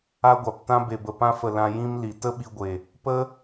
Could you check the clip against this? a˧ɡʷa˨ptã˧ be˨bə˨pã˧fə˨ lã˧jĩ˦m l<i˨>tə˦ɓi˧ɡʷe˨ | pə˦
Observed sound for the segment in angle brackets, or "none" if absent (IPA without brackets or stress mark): i˨